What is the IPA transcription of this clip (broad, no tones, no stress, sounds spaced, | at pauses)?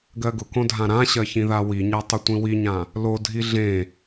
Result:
ɡ ɜ ɡ ʊ k õ dʱ ã ɾ ã ɕ ɜ ç ĩ ð a w i ɲ a tˤ ʊ tʷ ĩ w i ɲ ã | l o dʱ i ɮ ẽ